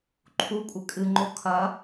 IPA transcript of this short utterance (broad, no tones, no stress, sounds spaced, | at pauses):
ǃʰ u kʷʼ ɘ kʼ ɨ ŋ͡ǃ o kʰ ɐ